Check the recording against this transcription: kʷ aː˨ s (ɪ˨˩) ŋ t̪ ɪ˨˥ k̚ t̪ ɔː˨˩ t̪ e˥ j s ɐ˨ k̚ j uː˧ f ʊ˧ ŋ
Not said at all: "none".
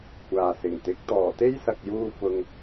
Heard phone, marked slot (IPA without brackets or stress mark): ɪ˨˩